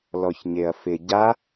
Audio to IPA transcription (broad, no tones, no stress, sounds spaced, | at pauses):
l ɔ ç ɲ e ɐ̯ f ɪ ɟ a